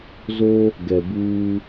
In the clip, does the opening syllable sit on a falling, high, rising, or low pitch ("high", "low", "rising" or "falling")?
high